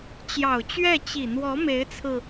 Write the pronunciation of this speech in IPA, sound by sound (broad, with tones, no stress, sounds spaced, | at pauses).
t͡ɕ j ɑ˨˩ ʊ̯ t͡ɕ ɥ ɛ˥˩ t͡ɕ i˨˩ n̪ w ɔ˧˥ m e˧˥ ɪ̯ t͡sʰ ɹ̩˧